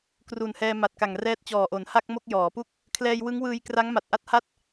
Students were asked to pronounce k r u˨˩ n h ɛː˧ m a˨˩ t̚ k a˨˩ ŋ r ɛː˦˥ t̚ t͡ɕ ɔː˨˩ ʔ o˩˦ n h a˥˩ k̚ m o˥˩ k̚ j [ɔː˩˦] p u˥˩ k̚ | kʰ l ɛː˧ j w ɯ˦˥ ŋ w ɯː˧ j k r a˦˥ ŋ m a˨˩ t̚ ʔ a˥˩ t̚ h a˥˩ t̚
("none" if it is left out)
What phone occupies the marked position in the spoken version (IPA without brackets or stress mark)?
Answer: ɔː˩˦